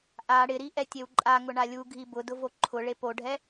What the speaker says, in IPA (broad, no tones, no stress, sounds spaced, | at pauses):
ʔ a ɽ ɪ ɾ i ʔ ɛ tʲ e w ǃʼ a ŋ ʊ ɳ a lʲ u ɡʱ i b ʊ d ʊ v o ǃʰ ʊ ɭ e p o ɖʱ ɛ